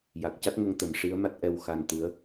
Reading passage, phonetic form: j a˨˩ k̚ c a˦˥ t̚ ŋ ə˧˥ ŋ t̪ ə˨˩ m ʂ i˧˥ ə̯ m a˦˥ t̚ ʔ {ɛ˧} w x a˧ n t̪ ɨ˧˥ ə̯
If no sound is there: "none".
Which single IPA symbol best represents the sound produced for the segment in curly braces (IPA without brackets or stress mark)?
ɛ˧